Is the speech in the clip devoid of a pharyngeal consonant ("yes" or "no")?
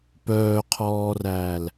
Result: yes